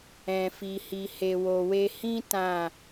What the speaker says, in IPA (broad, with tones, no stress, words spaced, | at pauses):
ɛ̃˨fi˨ hi˨he˨wo˨we˧ hĩ˦ tã˦˨